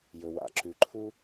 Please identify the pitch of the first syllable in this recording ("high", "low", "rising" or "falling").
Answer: low